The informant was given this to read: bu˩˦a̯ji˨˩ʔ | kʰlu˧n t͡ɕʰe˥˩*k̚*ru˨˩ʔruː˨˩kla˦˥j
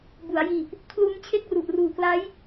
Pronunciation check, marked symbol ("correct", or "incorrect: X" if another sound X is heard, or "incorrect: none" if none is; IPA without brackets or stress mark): correct